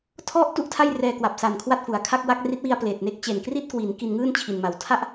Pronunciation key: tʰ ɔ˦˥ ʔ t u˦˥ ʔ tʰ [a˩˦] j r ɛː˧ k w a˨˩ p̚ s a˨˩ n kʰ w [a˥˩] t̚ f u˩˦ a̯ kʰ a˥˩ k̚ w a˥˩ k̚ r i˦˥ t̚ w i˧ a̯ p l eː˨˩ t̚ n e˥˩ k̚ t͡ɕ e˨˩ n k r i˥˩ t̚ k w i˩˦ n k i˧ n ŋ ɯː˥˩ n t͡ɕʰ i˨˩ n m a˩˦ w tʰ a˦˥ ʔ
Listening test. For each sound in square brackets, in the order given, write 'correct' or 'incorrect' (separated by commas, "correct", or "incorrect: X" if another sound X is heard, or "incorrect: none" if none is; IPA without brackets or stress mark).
incorrect: a˥˩, correct